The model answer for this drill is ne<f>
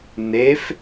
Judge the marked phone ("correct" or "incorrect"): correct